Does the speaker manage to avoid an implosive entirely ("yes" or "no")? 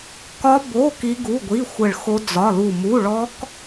yes